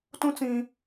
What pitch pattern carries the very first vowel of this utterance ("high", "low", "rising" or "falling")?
high